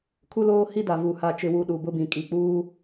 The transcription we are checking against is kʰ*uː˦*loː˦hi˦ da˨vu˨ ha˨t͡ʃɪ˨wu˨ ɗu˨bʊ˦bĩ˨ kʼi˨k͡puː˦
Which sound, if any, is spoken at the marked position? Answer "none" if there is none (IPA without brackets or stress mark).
u˦